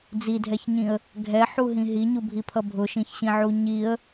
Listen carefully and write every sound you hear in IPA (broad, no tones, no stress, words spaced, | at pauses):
d͡zidʱɛçɲĩə̯ | ɡʱɛħuɦĩ ɦiɲubʱipʰʌ bʱʊʃĩçɕĩʕu ɲiə̯